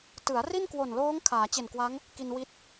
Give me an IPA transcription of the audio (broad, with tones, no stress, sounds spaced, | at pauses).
t ɯ˩˦ a̯ r i˥˩ n k w o˨˩ n l oː˦˥ ŋ kʰ aː˩˦ t͡ɕ e˨˩ n k w a˦˥ ŋ | k i˧ n w i˦˥ t̚